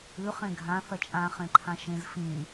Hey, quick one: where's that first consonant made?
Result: uvula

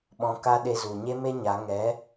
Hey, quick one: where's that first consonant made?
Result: lips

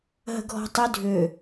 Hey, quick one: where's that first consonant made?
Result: throat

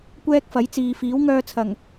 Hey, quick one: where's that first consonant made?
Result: velum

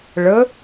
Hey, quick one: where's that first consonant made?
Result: retroflex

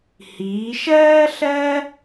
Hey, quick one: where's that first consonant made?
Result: throat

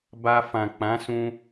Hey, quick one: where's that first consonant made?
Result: lips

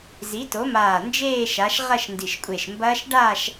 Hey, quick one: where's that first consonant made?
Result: tongue tip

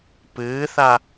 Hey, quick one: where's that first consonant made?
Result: lips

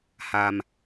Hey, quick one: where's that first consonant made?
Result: throat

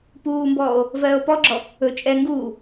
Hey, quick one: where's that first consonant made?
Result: lips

